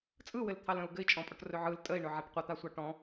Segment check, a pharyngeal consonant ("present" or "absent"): present